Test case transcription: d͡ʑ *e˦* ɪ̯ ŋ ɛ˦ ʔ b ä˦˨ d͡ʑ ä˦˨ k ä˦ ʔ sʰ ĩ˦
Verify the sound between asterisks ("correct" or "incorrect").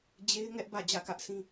correct